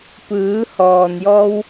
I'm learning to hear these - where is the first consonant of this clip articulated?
lips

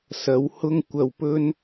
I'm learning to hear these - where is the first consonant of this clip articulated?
tongue tip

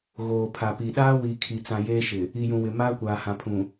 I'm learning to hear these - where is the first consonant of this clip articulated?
velum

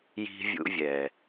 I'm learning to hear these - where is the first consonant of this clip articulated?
palate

